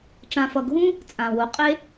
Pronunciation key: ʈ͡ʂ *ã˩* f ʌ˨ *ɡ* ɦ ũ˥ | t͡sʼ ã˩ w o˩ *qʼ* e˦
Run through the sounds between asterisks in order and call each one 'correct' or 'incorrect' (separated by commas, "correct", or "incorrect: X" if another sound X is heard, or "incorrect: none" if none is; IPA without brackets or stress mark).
incorrect: ã˨, correct, correct